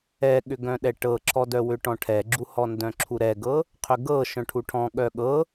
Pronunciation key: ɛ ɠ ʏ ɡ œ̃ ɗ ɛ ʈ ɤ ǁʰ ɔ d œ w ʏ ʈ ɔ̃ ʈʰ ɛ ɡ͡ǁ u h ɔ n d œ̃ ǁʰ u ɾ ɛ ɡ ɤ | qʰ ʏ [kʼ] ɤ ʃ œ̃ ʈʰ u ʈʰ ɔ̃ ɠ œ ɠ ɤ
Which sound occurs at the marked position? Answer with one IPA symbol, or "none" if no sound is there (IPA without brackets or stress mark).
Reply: ɡ